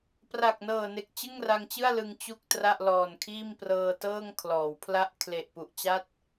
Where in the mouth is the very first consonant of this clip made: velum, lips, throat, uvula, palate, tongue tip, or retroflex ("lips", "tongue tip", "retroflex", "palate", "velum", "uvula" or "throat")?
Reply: lips